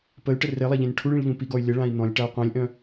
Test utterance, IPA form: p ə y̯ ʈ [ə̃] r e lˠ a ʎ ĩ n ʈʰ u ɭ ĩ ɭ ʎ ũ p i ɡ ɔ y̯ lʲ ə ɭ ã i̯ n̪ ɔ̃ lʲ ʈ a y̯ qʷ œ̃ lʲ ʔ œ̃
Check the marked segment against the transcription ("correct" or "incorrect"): incorrect